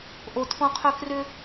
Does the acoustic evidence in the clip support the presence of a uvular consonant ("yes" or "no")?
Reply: yes